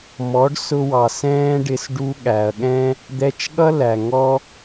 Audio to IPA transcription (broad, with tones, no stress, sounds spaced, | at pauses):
m ɔ˨˦ ɖ s ʊ˧ w ɑ˨ s ɛ̃ː˦ ɖ ɪ˧ s ɖ u˧ ɠ æ˨ ɐ̯ ɠ ɛ̃˦ | d̪ ɛ˧ t͡ʃ ɠ ʌ˦ l æ˨ ŋ ɔ˦